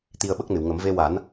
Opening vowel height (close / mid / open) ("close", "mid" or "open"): close